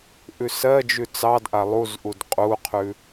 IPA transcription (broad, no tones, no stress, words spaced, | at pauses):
ʔʉsɜd͡ʒʉ t͡sɑdʔa lˠuzʔud qʼuqʰʉ